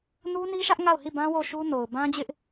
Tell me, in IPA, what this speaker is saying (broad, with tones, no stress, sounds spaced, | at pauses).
n u˦ n i˦ ʃ ä˦ ʔ ŋ a˦˨ ʊ̯ h i˦˨ b ã˦ w o˦˨ ʃ u˦ n o˨ ʊ̯ b ã˦ d͡ʑ ɪ˦ ʔ